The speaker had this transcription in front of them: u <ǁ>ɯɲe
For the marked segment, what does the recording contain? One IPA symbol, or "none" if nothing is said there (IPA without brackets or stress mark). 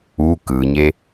k